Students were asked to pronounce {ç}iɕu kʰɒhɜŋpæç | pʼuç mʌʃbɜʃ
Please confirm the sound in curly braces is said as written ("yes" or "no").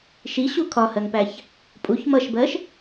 no